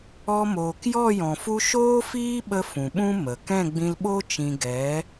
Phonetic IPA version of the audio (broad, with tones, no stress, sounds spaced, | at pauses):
ɔ˧ m oː˨ k j ɔ˦˨ j ɔ̃˨ f u˦ ʃ oː˦ f iː˦ ɓ ə˧ f ũ˨ ɓ ũ˦ m ə˨ k ɛ̃˦˨ ɡ͡b ĩ˧ l ɓ o˦ t͡ʃ ĩ˧ ɡ ɛ˨˦